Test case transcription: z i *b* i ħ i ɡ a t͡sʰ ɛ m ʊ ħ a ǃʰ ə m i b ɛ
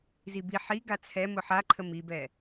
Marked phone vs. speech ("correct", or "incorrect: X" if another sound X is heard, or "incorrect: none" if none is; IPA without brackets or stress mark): correct